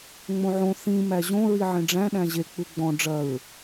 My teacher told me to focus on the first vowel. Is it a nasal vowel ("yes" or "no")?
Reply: yes